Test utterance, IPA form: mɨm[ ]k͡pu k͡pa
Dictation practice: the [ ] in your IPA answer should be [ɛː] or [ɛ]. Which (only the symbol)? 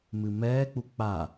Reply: ɛː